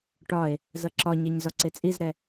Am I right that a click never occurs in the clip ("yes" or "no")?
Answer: no